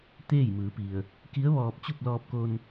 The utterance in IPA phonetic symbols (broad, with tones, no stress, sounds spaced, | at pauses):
t̪ eː˥˨ j m ɯː˩˧ p i˩ ə̯ | k i˧˥ ə̯ ʋ ɔː˧ p̚ t͡ɕ u˥˨ p̚ l ɔː˧ p̚ k o˧ n